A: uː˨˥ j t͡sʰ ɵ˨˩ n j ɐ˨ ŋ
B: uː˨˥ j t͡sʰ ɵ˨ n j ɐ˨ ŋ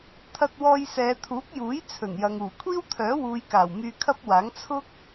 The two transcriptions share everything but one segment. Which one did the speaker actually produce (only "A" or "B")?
A